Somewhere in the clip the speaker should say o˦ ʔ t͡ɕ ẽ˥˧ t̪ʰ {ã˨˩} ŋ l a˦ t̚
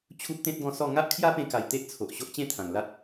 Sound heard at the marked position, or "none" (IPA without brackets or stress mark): ã˨˩